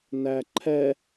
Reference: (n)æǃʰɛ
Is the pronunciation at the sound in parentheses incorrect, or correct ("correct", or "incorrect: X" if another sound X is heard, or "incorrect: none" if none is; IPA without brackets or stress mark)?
correct